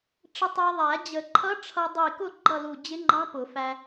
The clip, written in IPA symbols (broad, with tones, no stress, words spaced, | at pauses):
ʈ͡ʂɪ˧tˤæ˧ðˤæ˨˩˦ d͡ʑə˨˩˦ǃʰʌ˧˥ ʈ͡ʂʰʌ˧dˤi˧˩kʊ˥˨ ɡ͡ǃʌ˥˨lu˧˩ d͡ʑɪ˧˥ŋ͡ǃɑ̃˧˥pʊ˨˩˦fæ˧